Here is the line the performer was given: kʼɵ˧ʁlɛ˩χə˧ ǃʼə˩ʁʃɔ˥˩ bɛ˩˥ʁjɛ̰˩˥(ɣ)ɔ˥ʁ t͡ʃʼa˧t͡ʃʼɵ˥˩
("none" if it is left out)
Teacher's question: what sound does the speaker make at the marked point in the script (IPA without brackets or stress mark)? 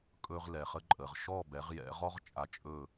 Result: ʁ